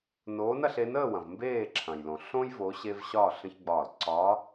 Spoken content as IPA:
n oː˨˦ n ɐ˥˨ ɬ e˨˦ n əː˥˨ w ɐ̃˩ v m b eː˥˨ ǁʰ ɐ̃˩ j l õ˩ ɬ õ˦ j v o˨˦ ɕ e˦ v ɕ ɒ˥˨ ɬ ə̃˦ ç ɡ͡b ɒː˧˩ l ǀ ɒ˨˦

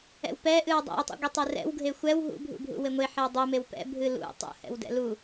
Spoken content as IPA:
ɛ̰ w p ɛ ʔ ɨ w dˤ ɛ̰ w tˤ ṵ ɡʷ e tˤ ɛ r ɛ̰ w ɡʱ e xʷ ɛ w ɦ ṵ bʱ ṵ bʱ ṵ w e ŋʷ e ħ ɛ w dˤ u m e w p ɛ̰ bʱ ɨ l ṵ tˤ ṵ h ɛ̰ w d ɛ̰ l u

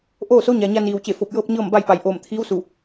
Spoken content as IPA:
ʔ oː˥˨ s o˧˥ ɲ a˩ ɲ a˧ n iː˩ w t͡ɕ e˧˩ f o˧˩ p̚ j ɤː˥˨ p̚ ɲ ɤː˥˨ m b a˥˨ j p a˧˩ j ʔ oː˧˩ m t̪ʰ iː˧˥ w s u˧˩

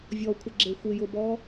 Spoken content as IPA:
vʲ ɔ kʷʰ ɪ ɡ͡ǁ e xʷ ɪ j ʊ b ɔ

